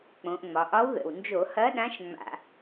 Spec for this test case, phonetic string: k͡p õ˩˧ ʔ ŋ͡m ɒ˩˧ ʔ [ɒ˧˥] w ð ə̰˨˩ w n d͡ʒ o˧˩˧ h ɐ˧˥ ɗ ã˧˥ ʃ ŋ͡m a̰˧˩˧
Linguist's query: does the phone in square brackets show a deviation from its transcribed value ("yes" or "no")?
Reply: no